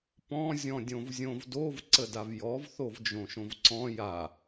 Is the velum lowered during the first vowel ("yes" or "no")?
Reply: yes